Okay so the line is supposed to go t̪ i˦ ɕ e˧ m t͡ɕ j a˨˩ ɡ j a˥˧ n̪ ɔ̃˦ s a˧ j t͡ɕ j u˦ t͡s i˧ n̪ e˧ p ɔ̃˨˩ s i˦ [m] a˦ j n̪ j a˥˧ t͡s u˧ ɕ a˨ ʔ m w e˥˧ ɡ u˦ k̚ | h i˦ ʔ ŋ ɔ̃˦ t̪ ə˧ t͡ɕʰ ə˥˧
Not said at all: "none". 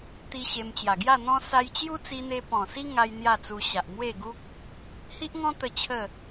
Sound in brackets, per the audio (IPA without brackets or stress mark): ŋ